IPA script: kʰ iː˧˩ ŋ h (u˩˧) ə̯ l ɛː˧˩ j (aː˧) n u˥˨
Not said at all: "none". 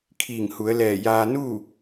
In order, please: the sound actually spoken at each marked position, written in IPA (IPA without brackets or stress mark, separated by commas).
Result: u˩˧, aː˧